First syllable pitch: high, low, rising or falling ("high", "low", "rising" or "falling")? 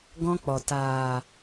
high